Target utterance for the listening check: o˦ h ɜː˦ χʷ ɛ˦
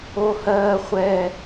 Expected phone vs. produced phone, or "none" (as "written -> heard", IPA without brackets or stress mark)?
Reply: none